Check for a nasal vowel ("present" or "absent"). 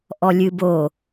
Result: absent